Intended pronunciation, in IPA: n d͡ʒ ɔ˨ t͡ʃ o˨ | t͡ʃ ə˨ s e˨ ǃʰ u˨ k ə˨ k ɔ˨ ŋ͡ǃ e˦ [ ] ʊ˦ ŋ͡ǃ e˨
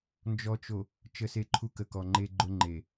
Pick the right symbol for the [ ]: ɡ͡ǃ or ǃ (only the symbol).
ɡ͡ǃ